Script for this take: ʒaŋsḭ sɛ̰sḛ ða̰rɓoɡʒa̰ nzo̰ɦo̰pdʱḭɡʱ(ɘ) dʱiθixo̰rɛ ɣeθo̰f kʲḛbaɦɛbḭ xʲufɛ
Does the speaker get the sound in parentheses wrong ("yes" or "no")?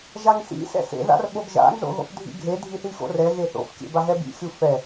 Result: yes